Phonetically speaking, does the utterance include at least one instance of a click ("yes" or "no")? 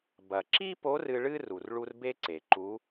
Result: yes